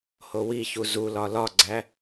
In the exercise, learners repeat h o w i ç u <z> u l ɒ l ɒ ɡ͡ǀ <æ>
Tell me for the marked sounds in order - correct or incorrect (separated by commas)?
correct, correct